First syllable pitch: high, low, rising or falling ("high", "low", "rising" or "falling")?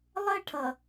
high